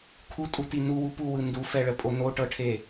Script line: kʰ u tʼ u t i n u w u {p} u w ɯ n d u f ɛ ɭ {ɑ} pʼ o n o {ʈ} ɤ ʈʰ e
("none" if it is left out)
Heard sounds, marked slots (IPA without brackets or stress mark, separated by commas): p, ə, ʈ